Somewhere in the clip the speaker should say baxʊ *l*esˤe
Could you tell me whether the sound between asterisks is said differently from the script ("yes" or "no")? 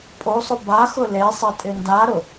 no